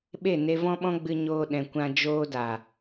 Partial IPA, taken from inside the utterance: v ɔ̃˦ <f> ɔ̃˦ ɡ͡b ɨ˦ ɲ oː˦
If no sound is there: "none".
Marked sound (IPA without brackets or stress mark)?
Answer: ɓ